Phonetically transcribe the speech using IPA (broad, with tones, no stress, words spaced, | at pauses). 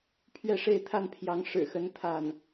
pʰɥɛ˥˧ʂe˥˧ɪ̯ t̪ʰa˥˩npʰjɑ˧˥ŋ ʂɻ̩˨˩xə˧˥n t̪ʰa˥˩n